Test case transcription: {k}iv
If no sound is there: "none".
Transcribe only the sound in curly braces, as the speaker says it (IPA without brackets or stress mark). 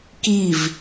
k